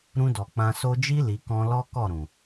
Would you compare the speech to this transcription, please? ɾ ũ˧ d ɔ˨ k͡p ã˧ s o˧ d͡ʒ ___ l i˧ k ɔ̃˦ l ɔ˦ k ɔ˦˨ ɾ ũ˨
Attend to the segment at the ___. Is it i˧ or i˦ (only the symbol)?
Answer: i˦